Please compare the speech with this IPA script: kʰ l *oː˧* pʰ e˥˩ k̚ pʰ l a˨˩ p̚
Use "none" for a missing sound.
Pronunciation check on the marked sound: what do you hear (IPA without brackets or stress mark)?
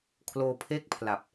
oː˧